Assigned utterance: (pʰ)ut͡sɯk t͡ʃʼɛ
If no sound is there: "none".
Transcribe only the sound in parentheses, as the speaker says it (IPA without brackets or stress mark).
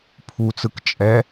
pʰ